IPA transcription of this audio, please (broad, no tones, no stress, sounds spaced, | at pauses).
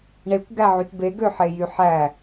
ɳ e kʷ ɡ æ ʕ y t b e ɡ ø ħ e j y ħ æ